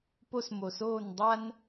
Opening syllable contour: high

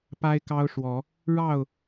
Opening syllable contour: high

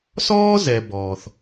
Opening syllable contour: high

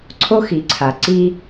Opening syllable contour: high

